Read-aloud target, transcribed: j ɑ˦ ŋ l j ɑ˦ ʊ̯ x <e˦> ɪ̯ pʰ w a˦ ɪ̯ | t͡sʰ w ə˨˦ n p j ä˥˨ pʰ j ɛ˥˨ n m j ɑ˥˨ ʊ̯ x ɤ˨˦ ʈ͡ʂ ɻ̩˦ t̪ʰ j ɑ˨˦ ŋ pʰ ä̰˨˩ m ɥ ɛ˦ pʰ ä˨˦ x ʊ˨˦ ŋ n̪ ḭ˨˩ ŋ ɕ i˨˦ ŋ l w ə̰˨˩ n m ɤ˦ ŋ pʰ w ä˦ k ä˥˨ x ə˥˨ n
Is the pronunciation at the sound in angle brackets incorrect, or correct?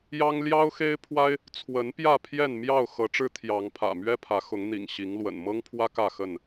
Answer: correct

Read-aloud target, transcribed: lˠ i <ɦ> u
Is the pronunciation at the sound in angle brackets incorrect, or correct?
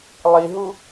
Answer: correct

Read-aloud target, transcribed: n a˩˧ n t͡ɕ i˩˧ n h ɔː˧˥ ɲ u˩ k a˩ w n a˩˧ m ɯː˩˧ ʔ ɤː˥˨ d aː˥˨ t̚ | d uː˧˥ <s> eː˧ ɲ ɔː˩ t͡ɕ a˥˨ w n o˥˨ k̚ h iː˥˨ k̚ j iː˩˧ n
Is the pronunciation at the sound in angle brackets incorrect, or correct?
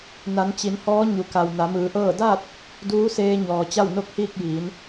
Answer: correct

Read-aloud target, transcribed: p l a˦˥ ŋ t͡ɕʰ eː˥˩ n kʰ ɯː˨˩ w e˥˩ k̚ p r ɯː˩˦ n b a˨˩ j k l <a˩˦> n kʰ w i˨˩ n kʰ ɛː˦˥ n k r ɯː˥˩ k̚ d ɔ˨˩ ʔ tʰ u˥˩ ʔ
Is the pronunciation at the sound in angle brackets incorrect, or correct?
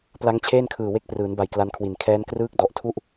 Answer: incorrect: a˦˥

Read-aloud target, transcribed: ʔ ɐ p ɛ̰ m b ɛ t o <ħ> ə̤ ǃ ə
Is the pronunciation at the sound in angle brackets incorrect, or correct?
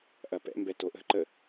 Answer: incorrect: ʔ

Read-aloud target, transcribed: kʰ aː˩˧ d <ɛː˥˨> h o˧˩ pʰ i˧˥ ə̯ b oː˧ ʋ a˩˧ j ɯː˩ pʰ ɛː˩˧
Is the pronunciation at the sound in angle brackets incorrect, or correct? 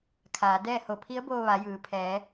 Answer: correct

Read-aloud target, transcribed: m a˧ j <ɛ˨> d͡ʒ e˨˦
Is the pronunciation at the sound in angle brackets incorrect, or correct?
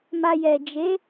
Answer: correct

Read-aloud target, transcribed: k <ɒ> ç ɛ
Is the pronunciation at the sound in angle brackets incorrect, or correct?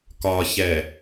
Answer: correct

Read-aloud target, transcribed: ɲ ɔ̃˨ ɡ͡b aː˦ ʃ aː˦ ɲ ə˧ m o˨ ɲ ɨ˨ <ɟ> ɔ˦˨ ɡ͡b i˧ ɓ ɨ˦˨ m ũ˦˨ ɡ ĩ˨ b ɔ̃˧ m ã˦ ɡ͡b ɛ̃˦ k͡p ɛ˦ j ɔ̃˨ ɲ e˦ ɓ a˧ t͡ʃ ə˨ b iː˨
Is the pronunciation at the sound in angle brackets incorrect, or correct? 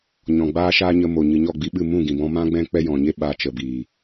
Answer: incorrect: ɲ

